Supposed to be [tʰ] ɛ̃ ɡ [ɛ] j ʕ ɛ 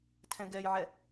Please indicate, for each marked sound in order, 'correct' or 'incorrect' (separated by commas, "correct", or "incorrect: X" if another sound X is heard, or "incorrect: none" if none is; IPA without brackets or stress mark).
correct, correct